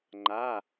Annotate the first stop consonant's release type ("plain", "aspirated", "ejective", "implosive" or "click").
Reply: click